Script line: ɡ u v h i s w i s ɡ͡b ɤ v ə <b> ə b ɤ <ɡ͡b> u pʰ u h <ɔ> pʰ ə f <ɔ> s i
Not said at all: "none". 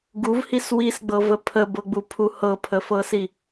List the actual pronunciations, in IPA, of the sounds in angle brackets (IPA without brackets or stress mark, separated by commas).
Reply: pʰ, ɡ͡b, ɤ, ɤ